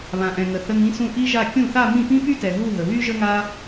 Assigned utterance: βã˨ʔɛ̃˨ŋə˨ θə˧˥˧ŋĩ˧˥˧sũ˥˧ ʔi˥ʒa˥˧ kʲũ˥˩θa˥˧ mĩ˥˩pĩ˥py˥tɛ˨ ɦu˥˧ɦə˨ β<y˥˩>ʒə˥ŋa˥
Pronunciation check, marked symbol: incorrect: y˥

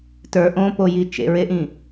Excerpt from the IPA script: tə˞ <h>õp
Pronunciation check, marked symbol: incorrect: ʔ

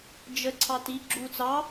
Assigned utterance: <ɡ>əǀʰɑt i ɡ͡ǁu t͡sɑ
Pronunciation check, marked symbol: incorrect: d͡ʒ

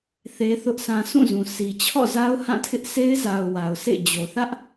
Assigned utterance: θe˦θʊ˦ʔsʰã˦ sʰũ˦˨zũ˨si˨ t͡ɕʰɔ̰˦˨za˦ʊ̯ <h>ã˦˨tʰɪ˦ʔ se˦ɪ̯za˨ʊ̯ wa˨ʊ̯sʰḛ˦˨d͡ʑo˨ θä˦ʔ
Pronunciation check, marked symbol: correct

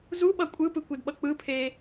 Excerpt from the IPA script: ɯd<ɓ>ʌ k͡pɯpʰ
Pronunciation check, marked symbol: correct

